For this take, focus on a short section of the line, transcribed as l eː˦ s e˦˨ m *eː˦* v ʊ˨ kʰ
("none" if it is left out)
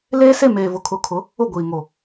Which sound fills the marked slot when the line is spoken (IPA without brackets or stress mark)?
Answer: eː˨